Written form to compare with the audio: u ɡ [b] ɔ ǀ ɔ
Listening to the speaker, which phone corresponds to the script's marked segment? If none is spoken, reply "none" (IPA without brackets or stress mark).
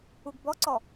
b